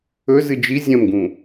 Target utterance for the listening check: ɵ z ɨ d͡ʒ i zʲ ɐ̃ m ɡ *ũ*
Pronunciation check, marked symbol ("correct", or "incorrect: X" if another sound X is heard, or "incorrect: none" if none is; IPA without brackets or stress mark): correct